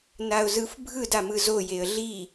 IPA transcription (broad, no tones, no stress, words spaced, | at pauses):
naʊ̯zɯfbʱɯd amɯzo jeə̯ɮi